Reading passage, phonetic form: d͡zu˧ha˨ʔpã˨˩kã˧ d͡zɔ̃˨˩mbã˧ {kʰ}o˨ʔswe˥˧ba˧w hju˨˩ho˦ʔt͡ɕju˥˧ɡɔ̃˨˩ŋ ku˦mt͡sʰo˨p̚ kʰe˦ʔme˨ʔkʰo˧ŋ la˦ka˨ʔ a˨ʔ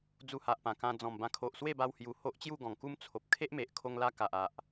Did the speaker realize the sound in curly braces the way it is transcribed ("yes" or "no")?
yes